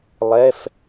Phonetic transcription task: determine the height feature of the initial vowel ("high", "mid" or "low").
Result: mid